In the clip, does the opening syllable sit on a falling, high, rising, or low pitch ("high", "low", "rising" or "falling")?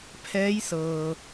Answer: rising